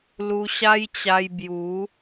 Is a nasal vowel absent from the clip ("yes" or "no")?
yes